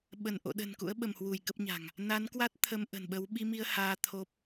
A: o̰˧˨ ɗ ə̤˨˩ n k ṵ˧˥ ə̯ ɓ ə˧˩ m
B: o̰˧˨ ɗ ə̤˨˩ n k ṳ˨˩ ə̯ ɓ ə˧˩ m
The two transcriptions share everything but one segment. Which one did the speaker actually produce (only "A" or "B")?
A